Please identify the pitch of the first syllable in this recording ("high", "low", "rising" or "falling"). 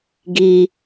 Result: high